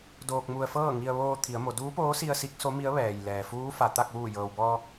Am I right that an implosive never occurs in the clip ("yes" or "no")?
yes